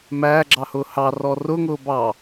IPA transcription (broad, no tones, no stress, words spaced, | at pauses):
mæːɡ͡ǁɑhʊː hɑrɔ rʊŋʊː bɑ